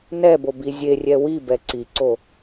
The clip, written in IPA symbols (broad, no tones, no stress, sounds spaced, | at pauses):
n ɛ b o b i zʲ e rʲ ɛ w i b ɛ ǀ i ǀ o